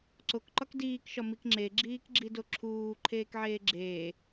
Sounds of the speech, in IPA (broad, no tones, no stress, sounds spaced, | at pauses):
ǀ o k ǃ ɒ k d iː k ʃ ɒ m i k ŋ͡ǁ e ɡ͡ǁ iː k ɡ͡ǁ i d o ǁʰ uː ǃʰ eː k ʕ eː ɡ͡ǁ eː